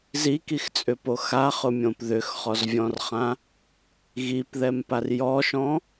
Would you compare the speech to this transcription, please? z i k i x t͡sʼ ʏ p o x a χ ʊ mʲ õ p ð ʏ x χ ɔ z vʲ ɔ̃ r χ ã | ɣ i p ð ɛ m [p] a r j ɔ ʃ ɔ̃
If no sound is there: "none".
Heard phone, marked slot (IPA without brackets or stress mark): p